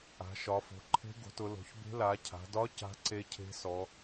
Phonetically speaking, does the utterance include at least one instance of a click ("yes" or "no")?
yes